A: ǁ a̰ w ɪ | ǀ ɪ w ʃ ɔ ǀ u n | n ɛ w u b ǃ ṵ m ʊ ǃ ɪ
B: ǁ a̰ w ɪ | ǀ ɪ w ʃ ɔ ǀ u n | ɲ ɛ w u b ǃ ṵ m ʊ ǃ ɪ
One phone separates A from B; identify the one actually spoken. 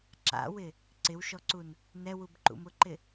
A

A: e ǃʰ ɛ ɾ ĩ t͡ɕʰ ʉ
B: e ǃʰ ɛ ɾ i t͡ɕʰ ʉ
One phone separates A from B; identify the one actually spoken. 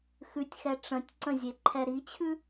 B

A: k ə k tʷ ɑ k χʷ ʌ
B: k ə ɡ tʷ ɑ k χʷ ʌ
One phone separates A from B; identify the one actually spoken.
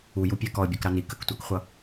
A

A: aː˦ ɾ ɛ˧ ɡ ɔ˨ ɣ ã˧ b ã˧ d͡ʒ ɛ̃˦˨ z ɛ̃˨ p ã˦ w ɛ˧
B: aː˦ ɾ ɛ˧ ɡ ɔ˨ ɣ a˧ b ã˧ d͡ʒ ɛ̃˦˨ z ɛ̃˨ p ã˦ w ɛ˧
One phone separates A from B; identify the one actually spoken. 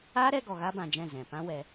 B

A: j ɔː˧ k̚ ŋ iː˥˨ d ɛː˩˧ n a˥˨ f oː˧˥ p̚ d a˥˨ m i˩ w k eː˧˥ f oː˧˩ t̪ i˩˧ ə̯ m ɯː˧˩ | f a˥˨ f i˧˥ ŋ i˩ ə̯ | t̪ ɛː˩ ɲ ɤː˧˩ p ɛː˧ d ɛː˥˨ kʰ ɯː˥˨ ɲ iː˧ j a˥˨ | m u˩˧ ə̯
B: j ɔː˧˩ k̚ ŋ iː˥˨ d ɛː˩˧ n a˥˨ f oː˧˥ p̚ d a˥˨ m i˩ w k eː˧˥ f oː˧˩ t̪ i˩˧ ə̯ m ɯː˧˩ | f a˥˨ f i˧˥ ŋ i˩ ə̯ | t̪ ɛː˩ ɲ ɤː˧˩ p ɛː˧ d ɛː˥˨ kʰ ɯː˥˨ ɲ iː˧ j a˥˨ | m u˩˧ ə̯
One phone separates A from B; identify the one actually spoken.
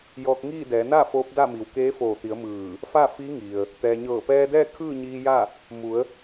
A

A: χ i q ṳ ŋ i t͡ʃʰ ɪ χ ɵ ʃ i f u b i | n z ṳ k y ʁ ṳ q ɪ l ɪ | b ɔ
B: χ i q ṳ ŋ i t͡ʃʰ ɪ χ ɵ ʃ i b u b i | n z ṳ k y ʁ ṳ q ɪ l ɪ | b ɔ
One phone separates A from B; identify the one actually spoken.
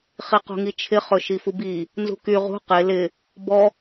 A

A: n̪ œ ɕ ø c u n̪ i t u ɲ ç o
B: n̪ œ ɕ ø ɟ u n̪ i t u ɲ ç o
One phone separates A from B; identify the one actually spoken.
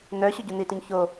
B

